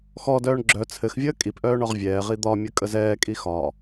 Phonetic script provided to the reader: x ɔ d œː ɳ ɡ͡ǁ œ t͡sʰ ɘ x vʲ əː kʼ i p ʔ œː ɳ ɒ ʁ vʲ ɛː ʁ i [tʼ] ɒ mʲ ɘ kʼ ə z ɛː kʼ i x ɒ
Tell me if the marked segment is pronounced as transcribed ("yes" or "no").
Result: no